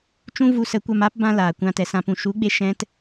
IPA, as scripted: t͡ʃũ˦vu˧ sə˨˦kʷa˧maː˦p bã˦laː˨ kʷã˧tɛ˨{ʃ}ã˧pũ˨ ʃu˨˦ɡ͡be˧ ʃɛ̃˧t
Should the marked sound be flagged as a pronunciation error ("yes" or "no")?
yes